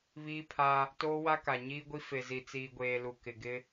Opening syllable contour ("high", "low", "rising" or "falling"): high